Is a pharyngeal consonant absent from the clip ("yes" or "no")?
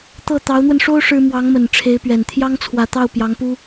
yes